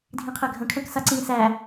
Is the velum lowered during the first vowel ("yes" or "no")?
yes